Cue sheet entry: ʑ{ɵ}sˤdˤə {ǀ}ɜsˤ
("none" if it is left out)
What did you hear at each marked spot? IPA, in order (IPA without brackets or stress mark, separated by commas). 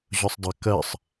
ɵ, k